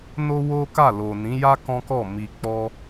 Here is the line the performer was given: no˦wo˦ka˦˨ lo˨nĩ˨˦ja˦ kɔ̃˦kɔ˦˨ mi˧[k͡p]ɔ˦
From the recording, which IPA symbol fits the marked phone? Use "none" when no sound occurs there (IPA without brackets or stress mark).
k͡p